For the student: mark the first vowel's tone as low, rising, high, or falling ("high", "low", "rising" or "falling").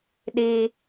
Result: high